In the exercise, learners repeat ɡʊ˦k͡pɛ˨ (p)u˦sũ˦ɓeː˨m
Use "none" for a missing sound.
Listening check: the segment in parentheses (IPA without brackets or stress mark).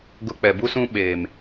b